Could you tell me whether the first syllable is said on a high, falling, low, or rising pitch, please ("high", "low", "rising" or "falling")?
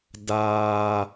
high